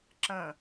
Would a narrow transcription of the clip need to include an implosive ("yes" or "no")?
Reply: no